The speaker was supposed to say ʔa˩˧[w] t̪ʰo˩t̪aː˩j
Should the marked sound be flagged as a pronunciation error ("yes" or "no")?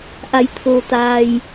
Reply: yes